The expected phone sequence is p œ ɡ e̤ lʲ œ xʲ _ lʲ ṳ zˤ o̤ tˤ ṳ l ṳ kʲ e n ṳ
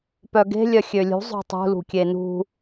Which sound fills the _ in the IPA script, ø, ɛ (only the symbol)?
ø